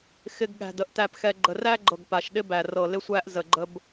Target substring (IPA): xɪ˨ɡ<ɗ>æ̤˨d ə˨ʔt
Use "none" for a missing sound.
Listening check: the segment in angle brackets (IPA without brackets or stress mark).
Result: ɠ